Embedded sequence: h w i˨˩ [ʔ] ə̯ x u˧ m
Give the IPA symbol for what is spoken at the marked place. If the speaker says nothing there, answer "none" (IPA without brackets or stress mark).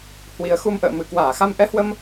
none